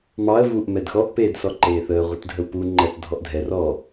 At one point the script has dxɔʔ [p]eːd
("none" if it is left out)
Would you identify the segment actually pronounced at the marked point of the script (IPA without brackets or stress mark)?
p